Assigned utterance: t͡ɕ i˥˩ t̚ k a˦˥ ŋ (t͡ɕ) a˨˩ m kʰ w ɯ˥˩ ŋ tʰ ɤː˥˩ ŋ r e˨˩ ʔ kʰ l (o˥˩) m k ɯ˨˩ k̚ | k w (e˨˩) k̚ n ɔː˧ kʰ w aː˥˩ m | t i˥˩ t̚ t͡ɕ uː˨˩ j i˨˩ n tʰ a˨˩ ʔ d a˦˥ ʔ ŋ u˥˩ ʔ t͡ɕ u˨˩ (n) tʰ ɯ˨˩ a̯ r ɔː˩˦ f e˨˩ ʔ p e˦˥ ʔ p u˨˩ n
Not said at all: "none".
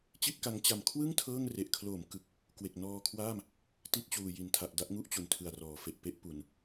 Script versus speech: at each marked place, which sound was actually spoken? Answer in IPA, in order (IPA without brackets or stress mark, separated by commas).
t͡ɕ, o˩˦, e˨˩, n